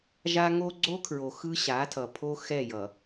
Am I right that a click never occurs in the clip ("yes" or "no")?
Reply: no